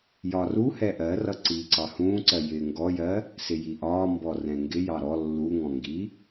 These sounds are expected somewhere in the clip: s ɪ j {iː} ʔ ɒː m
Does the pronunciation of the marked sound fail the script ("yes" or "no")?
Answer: yes